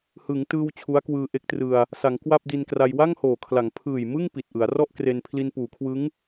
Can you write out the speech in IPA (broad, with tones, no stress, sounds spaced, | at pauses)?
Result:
h ɯ˩˦ ŋ t ɯː˧ w t͡ɕʰ u˦˥ a̯ k w ɯː˧ ʔ e˦˥ k̚ t r ɯ˧ a̯ | s a˩˦ ŋ k w a˥˩ p̚ d i˧ n k r a˧ j w a˥˩ ŋ h oː˨˩ kʰ l a˩˦ ŋ pʰ ɯː˨˩ j m ɯ˥˩ ŋ p i˨˩ t̚ ʔ ɯ˩˦ a̯ r ɔ˥˩ ʔ k r e˧ n pʰ l i˧ n p uː˩˦ kʰ w ɯ˦˥ ŋ